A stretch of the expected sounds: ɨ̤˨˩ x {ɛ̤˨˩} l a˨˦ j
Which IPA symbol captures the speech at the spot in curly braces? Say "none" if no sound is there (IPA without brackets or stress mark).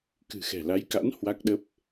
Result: ɛ̤˨˩